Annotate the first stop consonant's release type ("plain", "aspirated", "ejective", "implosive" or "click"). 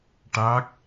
plain